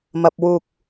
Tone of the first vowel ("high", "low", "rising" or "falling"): low